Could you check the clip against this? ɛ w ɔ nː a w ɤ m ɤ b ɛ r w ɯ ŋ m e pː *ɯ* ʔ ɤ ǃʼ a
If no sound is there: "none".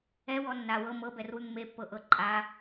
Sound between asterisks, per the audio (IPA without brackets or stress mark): ɤ